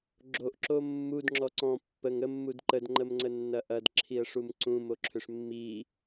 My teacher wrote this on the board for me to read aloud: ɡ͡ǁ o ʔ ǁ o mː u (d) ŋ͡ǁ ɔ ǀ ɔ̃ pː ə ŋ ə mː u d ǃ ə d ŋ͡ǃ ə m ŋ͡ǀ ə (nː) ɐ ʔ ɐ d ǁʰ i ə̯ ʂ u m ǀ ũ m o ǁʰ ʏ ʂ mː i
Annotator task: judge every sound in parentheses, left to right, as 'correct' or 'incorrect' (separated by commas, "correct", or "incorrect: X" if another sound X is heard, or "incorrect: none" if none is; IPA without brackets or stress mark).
correct, correct